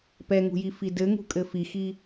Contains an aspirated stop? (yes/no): no